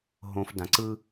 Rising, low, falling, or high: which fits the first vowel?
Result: low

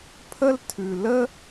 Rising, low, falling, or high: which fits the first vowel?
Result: high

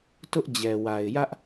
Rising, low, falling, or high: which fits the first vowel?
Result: high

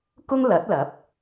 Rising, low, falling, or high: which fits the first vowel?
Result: high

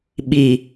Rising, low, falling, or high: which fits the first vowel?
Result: low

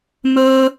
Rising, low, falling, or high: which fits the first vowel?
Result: high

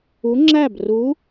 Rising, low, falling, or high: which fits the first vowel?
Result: rising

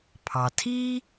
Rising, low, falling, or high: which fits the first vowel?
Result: low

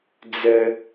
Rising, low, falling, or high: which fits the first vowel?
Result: high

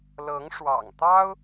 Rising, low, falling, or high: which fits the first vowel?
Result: rising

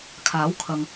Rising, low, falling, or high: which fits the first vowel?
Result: rising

